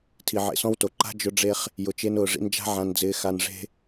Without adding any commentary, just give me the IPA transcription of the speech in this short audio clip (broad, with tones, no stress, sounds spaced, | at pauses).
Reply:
tʰ i˨ ʕ ḛ˨ s ɔ̃˦ w t o˨ ǃ a̤˦ d͡ʒ ʊ˦ ɖ͡ʐ e˦ χ | j ʊ˨ t͡ʃ e˦ n ʊː˨ ʐ ḭ˦ n d͡ʒ a̤˦ ʕ ã˨ n d͡z ɪː˨ x a˨ n ʐ e̤˦